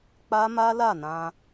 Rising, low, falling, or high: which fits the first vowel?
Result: high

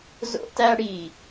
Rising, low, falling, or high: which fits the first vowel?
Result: high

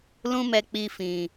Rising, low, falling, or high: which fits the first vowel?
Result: high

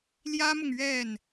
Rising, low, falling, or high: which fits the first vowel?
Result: high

